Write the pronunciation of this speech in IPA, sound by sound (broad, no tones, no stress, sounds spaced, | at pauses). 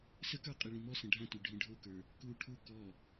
s ə k ə˞ qʼ i ɭ ĩ m ɔ s ə̃ ɖʱ ã t y ɖʱ ĩ ɖʱ o k ə˞ | k u ʈʰ u k ɔ